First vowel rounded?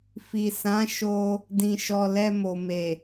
no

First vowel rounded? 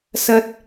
no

